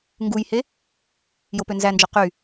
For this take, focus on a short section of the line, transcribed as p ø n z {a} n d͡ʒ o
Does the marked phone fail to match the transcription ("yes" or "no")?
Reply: yes